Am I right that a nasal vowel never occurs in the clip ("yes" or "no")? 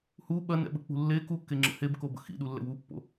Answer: yes